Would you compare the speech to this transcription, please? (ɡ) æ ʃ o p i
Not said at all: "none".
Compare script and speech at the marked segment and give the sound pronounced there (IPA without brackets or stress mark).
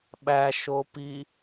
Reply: ɓ